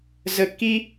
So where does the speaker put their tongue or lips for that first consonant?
tongue tip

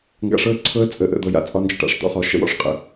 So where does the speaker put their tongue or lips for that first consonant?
velum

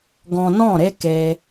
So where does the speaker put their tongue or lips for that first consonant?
velum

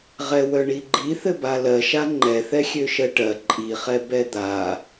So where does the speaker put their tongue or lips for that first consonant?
uvula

